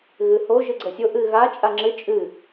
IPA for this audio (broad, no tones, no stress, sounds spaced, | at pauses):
ɣ ɨ h o ʒ ɨ ɡ͡ǀ ə sʲ o ʔ ɨ ɣ a t͡ʃʼ a ŋ͡ǁ ɨ t͡ʃʼ ɨ